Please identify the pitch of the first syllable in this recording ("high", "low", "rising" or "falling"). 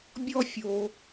high